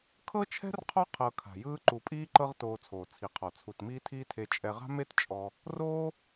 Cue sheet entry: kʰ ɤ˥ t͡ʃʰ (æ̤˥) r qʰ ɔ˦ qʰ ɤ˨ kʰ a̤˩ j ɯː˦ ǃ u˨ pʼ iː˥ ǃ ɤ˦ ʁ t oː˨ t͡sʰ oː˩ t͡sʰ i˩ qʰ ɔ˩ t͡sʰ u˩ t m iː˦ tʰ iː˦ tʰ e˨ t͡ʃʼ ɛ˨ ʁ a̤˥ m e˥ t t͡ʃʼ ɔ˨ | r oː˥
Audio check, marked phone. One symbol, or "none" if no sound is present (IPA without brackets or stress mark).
ɛ̤˥